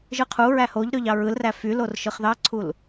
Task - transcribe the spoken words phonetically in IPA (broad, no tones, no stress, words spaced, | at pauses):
ʒɯqʰuɹæ hoʎɾøʎ ɑɹɯlræ fylor ʃɯχðɑǀʰul